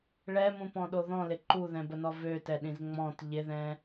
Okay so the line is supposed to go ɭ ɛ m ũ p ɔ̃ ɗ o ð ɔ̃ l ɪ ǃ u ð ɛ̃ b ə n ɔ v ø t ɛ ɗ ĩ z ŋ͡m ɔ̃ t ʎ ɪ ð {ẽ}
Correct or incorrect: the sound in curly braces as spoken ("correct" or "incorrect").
incorrect